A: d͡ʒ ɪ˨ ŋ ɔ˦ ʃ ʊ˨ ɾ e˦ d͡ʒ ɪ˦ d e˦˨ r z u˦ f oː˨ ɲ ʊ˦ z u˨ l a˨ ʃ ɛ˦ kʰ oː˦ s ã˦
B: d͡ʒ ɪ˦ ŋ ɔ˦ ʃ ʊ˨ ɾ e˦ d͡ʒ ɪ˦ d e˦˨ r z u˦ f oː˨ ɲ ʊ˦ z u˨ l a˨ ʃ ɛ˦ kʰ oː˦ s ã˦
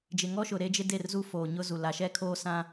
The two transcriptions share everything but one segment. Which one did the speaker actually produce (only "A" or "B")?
A